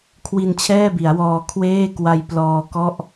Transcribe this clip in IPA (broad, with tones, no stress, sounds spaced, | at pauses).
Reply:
kʰ w i˧ n t͡ɕʰ ɛː˥˩ b i˩˦ a̯ w ɔː˧ kʰ w eː˥˩ k w a˧ j p l ɔː˧ k ɔ˥˩ ʔ